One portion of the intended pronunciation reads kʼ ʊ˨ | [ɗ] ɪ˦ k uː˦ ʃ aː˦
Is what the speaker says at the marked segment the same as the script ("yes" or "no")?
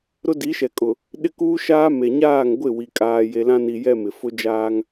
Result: yes